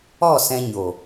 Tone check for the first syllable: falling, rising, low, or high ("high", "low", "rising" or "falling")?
falling